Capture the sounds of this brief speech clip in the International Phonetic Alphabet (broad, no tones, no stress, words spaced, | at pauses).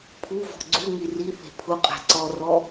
pʰuvɔ̤ ɡ͡ǀuŋi ri θe̤pʰʊqʼa̤ ǀɔrɔ